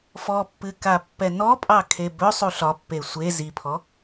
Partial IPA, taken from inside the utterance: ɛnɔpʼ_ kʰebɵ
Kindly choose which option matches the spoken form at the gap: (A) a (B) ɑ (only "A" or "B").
B